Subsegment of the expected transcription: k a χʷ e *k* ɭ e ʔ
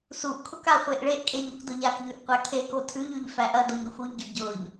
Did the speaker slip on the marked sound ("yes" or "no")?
yes